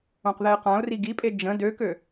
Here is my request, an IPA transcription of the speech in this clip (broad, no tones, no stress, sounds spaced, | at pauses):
õ q ð ɛ ɪ̯ q ã ʊ̯ r i ɡ i pʼ e d͡ʒ ə̃ d ø k ø